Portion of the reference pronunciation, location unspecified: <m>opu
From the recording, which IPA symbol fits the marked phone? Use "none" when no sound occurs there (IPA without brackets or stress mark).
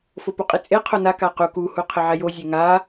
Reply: f